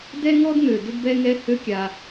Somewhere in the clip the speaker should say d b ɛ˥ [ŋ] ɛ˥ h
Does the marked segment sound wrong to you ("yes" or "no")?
no